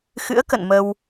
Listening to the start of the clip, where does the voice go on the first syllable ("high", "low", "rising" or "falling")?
rising